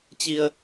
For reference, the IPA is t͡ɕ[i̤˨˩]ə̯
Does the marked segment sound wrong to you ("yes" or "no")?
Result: yes